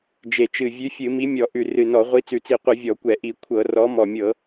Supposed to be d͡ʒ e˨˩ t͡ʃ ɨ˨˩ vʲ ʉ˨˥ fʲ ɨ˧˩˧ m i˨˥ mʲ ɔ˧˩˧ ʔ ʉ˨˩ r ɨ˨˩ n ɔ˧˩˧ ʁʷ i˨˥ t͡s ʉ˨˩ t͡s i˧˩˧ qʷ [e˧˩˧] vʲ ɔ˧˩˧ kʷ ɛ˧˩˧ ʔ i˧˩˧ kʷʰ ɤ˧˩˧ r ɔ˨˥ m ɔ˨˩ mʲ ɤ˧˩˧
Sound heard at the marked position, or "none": ɨ˧˩˧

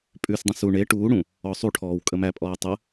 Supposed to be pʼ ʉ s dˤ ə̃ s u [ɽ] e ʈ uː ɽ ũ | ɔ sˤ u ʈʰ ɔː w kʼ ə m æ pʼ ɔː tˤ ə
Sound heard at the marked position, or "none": ɳ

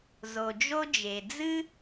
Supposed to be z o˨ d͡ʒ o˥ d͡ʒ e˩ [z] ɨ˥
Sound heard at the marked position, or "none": d͡z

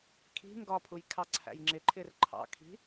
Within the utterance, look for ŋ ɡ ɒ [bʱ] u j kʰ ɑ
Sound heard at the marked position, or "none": pʰ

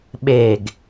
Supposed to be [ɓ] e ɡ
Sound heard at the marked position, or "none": ɓ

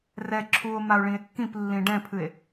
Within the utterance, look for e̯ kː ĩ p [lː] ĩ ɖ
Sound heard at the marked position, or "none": lː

